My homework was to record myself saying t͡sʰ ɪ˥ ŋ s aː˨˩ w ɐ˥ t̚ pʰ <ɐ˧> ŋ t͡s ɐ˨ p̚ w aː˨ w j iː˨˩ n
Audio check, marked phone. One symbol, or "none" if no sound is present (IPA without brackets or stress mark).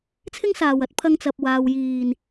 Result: ɐ˧